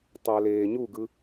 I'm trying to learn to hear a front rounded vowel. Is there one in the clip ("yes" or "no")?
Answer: no